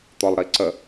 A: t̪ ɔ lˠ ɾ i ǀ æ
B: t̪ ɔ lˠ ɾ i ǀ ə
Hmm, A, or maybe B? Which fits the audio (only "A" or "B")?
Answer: B